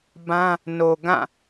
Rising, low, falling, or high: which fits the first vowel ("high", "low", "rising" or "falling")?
high